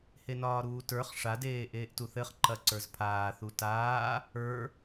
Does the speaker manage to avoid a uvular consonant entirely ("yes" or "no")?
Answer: no